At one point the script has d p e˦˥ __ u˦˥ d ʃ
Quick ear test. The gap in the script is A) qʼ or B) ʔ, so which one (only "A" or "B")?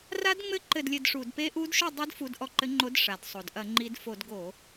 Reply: B